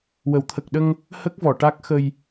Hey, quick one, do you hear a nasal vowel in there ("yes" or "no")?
no